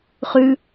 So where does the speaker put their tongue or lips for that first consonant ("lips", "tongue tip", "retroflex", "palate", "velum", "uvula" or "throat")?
uvula